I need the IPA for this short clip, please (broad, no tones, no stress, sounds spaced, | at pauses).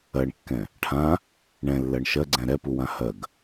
ɜ ɳ kː ɛ̃ | ʈʰ ã | ɳ ɛ̃ lː ɜ ɳ ʃ ɜ ɡ͡ǀ ɛ̃ ɾ ɛ p u w ã h ɜ ɡ